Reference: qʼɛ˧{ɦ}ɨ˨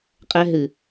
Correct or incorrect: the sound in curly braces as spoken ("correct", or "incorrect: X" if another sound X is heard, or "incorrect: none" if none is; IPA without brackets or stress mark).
correct